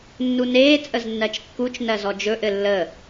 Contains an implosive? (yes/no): no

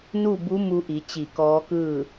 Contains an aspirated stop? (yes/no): no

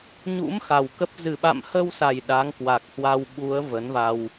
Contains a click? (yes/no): no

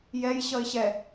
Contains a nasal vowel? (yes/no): no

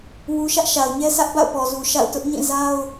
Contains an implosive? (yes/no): no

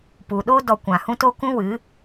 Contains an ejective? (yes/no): no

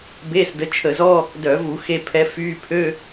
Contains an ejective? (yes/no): no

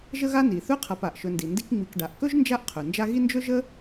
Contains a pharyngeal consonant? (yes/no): no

